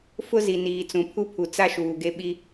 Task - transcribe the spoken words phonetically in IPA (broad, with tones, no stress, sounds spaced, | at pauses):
f ʊ˦ z i˨ n iː˨ t͡s ũ˨ pʰ u˦ pʰ u˨ t͡s a˦ ʃ uː˨ ɡ e˦ ɓ i˦